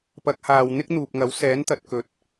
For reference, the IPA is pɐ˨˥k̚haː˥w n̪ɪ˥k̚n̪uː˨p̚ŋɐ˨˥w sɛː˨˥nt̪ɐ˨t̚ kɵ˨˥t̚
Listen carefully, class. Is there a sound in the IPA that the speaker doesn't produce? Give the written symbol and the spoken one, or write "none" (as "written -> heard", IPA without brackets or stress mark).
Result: aː˥ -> aː˨